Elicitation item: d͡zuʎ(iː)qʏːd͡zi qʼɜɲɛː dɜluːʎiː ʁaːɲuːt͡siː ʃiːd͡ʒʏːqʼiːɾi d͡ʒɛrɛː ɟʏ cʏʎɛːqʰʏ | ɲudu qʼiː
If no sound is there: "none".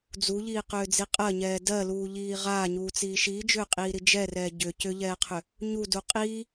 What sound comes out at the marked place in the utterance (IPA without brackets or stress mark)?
iː